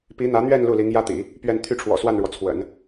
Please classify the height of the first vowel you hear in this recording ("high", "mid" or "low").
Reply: high